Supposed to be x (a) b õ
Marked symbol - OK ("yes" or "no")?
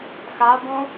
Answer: yes